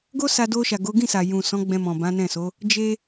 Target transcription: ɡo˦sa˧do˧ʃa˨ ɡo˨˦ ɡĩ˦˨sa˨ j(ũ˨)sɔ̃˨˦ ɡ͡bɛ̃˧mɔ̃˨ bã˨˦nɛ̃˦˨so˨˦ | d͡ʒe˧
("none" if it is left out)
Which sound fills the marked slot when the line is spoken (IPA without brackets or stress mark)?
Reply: ũ˨